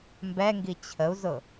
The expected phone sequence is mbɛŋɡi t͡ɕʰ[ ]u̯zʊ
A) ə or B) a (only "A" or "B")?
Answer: A